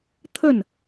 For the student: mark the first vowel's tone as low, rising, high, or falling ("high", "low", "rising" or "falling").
falling